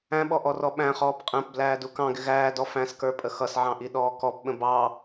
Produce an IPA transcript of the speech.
æ̃ ɓ ɔ ʔ ɔ r ɔ ɓ æ̃ χ ɔː p qʼ æ̃ p b l æː d u k ɑ̃ ɡ ɪ ɣ æː d ɔ f æ̃ s k ə˞ pʼ ə x ʌ s ʕ ɑ̃ ʔ i ɗ ɔː k ɔ p ɓ ə̃ b ɑ

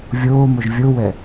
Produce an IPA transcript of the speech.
vʲ oː m o ʒ vʲ o w ɛ

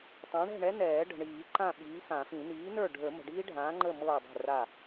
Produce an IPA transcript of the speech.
tˤ ã˨˥ ɳ ɛ̤˥˨ ɳ ɛ˦˥ n ɛː˨˩˦ ɖ ə̤˨ ɳ iː˨˩˦ ǃ ã˥˨ ɓ iː˨˥ x ã˨˩˦ f ĩ˨˩˦ n iː˨˥ n ə˞˥˨ ɖʱ ə˞˨˩˦ m ə̤˨ ɖ iː˦˥ ɖʱ ãː˨˥ ŋ͡ǃ ə˥˨ m ɤː˥˨ dˤ ɛ̤˥˨ r a˥˨

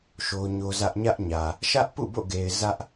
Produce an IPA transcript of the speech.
ʃ o˦ ɲ o˦ z ä˦ ʔ ɲ ä˦ ʔ ɲ ä˨ | ʃ ä˦ ʔ p ṵ˦˨ b o̰˦˨ ɡ e˨ ɪ̯ z ä˦ ʔ

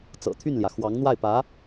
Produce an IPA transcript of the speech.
t͡s ɤ̰˨˩ t̪ʰ y˥˩ n l j ä˩ x w ɑ˧˥ ŋ n̪ w a˥˩ ɪ̯ p ä˧˥

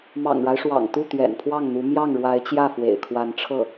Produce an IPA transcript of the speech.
m ɑ̰˨˩ ŋ ɻ a˦ ɪ̯ ʂ w ɑ̰˨˩ ŋ t̪ u˥˩ t̪ ɥ ɛ̰˨˩ n pʰ w ɑ˥˩ ŋ n̪ u˧˥ m j ɑ˥˩ ŋ ɻ w a˧˥ ɪ̯ t͡ɕ j ä˥˩ f w ḛ˨˩ ɪ̯ kʰ w a˧˥ n ʈ͡ʂʰ ɤ˥˩

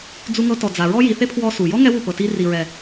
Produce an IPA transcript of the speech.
d͡z u˧ ŋ ɤ˧ t ɔ˨ d͡z a˨ ɹ ɔ˦ j i˨ θ e˦ pʰ w ɔ˧ s u˨ j ɔ˦ ŋ ɛ˦ w u˦˨ p ɤ˨ t i˧ r i˨ ɹ ɛ˨

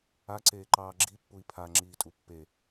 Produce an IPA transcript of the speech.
a ǀ eː ǃ ɑː ɡ͡ǁ i pː u i̯ pʰ a ŋ͡ǁ iː tʼ u pː e

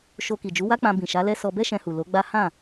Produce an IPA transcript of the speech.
ʃ o˧ k i˨ d͡ʒ u˨˦ w a˦ k͡p ã˧ b ĩ˨ ʃ a˨˦ l ɛ˦ s ɔ˧ b ɛ˦ ʃ ɛ̃˧ h u˨ l o˨˦ ɡ͡b a˦ h ã˦˨

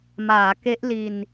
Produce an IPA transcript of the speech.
m aː˩˦ k e˦˥ ʔ l i˧ n

